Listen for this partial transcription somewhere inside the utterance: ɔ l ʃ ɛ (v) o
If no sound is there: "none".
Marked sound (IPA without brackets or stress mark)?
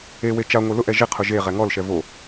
v